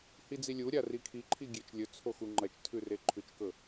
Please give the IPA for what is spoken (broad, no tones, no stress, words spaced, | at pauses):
hid͡zilʲuɾʲa rikʰiǃʰi ɡʲet͡ʃlʲɵt͡sʰo xuŋ͡ǃɐt͡ʃtʰʉ reǃʰʉt͡ʃkɵ